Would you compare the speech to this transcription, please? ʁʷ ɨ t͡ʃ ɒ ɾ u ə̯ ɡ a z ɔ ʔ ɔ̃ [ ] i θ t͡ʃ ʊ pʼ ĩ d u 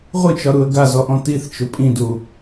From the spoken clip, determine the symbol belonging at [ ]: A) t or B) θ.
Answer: A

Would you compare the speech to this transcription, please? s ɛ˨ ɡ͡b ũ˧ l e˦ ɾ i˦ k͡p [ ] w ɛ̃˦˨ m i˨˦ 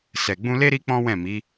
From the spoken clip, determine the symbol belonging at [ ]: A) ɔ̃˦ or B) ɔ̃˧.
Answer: A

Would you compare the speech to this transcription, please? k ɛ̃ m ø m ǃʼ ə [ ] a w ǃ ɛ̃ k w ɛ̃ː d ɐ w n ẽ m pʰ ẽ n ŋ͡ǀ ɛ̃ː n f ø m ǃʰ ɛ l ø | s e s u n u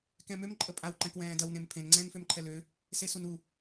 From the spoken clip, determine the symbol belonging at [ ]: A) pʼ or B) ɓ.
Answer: A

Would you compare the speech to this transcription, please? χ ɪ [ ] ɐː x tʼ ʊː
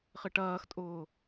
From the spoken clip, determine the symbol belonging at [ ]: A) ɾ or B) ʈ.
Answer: B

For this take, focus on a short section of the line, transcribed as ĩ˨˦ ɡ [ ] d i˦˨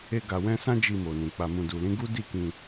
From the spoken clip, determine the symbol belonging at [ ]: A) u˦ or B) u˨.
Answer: A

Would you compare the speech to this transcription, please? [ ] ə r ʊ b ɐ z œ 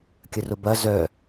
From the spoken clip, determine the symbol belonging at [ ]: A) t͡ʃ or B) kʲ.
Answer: B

